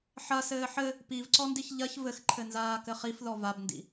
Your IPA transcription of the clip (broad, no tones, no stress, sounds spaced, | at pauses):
ħ ɐ s ɘː ħ ɘ | p i v ǀ ɔ n d i ç ʎ ɐ ç v ɘ x ǃʰ ɘ n z aː k ɘ χ i f ð ɔ v a b n d ḭ